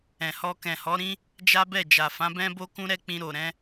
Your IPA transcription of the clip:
ɛ̃˨hɔ˧ kɛ̃˨hɔ˨˦ɾĩ˦ | d͡ʒa˦bɛ˦˨ d͡ʒa˨fã˨˦bɛ̃˦bo˦ kũ˦ɾɛ˦k͡pĩ˧ ɾo˨ɾɛ̃˨˦

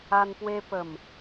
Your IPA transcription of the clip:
a˧npwe˧ pə˨˩m

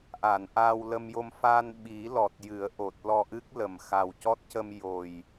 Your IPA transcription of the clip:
ʔa˨˩˨n ʔaː˧wlə˧mjo˧m fa˧n ɓi˨˩˦ lɔ˨˩t̚ jɨ˨˩˦ə̯ ʔo˨˩t̚ lɔ˧ʔɨ˦˥k̚lə˨˩m xa˨˩wcɔ˦˥t̚cə˧m jo˨˩j

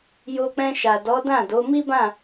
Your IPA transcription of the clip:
jo˧k͡pɛ̃˧ʃa˨ dɔ˨˦dã˦˨do˨˦ mi˦bã˦˨

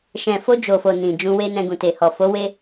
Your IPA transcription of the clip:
ʃɛ̃˨fo˧ d͡ʒo˨fo˨ nĩ˨d͡ʒũ˧we˦nɛ̃˧ ɡũ˨te˨ hɔ˨fo˨˦ we˦

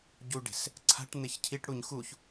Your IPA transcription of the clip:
ɟuɖe̤s | ǀʰa̤ʈ n̪eçcʰiʈɽuɲ xuç

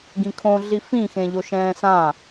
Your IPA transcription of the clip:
ɡĩkʰõ ɮifĩ xẽʎoʃɛ̃ːsã

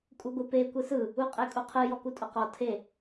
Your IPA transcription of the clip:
kʼuɡʷɯpe kʷɯsɯ | uqʼekʼuqʰɯ jɔkutʼʊqɔ tʰe

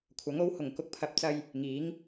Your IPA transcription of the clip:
kʷʰɐ˨˥ŋo˨˥whʊ˨˩ŋ kʊ˧k̚pʰɐ˨˥p̚t͡sɐ˧j | ŋiː˨˥ŋ

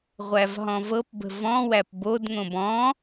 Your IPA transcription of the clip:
ʁʷævɦɔ̃vɤpbə̤ vɔ̃ wæpbodŋõb ɔ̃

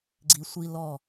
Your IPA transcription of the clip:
ɡ͡ǀi˧ sʷi˧ lɔ˧˩

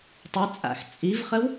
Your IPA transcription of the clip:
tˤut͡sʼa̰x t͡sʼivχəw

